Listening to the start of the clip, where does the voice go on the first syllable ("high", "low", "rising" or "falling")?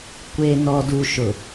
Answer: low